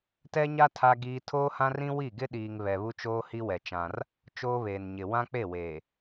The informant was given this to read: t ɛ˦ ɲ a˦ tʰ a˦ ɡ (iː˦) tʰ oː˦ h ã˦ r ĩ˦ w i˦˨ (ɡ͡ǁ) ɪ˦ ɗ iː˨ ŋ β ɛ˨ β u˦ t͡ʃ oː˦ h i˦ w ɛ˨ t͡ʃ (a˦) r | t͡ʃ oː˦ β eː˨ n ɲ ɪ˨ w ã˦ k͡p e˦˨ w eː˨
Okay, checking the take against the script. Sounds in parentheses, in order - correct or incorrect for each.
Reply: correct, incorrect: ɡ, incorrect: ã˦

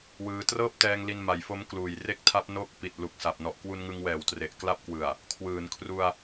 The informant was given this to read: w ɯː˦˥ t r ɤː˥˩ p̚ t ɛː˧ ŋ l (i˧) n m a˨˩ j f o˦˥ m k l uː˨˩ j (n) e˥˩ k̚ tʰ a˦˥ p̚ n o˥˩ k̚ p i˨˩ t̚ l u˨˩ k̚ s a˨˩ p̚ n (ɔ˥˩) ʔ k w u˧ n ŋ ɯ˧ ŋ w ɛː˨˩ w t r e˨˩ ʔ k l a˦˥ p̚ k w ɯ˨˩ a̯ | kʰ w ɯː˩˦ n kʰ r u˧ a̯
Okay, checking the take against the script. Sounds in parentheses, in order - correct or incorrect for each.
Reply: correct, incorrect: r, incorrect: ɔ˨˩

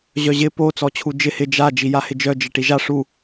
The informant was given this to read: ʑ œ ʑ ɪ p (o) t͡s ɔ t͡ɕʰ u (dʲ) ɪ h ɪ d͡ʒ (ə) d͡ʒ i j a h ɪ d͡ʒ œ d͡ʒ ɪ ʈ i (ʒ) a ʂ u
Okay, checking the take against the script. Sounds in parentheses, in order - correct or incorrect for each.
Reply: correct, incorrect: d͡ʒ, incorrect: a, correct

